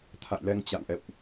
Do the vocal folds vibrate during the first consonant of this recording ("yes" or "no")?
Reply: no